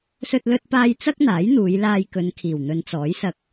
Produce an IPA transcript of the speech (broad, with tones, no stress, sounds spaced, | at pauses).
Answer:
s ɵ˧ t̚ l ɵ˧ t̚ p aː˧ j t͡s ɐ˥ k̚ n̪ aː˨˥ j n̪ uː˨˧ j l aː˧ j k ɵ˨˧ n kʰ iː˨˩ w n̪ ɵ˨˧ n t͡s ɔː˨˥ j s ɐ˧ k̚